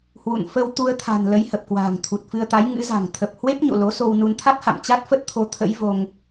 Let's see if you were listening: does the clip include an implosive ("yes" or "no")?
no